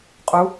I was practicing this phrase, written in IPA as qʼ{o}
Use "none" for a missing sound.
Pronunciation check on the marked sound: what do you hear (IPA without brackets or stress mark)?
u